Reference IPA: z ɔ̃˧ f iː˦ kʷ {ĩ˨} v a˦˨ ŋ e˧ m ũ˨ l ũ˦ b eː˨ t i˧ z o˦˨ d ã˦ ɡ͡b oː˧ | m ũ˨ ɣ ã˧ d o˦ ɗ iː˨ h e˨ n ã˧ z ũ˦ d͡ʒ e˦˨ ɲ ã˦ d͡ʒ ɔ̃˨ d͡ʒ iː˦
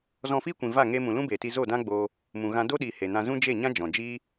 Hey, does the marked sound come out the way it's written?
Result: yes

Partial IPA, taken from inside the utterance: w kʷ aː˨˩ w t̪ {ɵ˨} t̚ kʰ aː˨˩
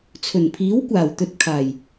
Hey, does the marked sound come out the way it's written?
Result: yes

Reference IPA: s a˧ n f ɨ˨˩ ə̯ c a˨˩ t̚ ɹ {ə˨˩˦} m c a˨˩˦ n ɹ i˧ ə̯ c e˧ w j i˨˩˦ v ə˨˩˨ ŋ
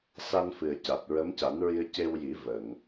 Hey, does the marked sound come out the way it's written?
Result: no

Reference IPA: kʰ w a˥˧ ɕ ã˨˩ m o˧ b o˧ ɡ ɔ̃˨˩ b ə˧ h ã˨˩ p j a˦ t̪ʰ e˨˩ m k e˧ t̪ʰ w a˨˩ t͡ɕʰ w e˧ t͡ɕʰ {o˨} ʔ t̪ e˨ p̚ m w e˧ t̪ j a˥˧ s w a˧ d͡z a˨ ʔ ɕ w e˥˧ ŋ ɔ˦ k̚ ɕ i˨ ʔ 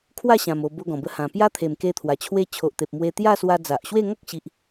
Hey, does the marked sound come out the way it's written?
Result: yes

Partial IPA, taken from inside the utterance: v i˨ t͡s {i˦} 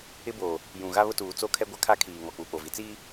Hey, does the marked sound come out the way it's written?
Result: no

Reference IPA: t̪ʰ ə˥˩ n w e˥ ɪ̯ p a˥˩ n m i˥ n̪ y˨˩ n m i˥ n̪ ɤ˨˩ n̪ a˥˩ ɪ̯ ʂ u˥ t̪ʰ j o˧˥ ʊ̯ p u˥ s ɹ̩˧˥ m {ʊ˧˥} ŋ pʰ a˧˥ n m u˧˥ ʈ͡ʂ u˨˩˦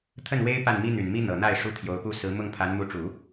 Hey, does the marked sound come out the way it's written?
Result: no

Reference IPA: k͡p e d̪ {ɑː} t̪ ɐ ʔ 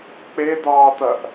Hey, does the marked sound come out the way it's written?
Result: yes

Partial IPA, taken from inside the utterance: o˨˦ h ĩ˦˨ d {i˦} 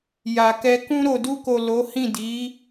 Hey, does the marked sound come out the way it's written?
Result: no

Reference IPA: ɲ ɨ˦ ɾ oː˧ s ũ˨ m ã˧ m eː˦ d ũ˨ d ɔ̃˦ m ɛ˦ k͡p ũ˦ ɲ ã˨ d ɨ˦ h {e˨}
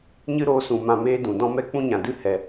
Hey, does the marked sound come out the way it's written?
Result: no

